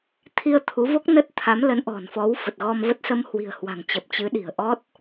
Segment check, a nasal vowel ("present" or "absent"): absent